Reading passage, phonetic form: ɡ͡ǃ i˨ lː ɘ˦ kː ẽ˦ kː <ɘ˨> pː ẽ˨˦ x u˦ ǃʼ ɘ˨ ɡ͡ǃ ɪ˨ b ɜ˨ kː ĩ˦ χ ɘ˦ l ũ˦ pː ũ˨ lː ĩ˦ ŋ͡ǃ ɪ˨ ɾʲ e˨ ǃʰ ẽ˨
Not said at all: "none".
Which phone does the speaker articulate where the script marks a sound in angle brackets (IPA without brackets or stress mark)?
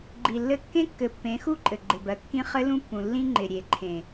ɘ˨